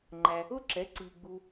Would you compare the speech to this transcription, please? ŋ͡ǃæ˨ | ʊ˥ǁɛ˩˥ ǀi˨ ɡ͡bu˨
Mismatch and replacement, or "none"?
none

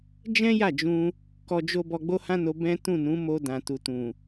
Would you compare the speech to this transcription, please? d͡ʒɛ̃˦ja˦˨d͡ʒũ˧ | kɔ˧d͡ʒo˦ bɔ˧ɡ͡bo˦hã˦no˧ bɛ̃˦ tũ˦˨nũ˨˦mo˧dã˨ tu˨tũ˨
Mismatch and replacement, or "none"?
none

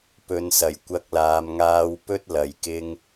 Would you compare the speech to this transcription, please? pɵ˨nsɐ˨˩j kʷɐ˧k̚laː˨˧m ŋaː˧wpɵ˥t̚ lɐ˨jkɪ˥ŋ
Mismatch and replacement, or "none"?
none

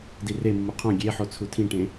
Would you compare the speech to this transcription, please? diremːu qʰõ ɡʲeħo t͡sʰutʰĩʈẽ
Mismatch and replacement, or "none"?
none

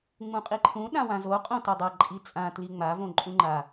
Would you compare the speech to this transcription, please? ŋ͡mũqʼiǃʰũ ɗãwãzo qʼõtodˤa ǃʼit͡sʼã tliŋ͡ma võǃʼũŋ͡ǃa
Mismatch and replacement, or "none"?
none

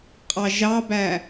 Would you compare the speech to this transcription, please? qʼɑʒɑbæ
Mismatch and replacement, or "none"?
none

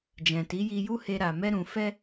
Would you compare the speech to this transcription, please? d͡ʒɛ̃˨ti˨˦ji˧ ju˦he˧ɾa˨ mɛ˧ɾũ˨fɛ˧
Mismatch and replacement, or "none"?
none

